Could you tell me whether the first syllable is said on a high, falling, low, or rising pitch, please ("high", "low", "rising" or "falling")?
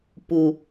low